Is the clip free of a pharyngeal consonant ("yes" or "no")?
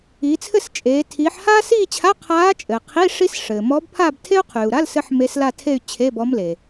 no